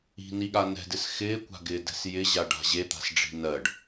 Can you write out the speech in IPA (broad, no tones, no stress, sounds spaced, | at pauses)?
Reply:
i̤ n i ɠ a n ɛ̤ d ɪ s x ɪː kʷ a̤ ɡ ɪː d ɛ̤ s j ɪ ʑ a ɖ a̤ ʑ e t̪ a̤ s ɖ͡ʐ i̤ n ɜ ɖ